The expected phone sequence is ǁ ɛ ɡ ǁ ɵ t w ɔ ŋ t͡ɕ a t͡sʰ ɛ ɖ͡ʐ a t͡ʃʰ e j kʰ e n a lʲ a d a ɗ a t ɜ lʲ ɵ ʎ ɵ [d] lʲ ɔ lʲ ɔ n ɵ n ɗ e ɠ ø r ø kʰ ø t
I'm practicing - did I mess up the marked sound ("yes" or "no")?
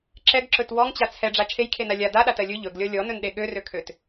yes